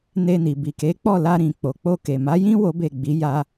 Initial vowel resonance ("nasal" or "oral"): oral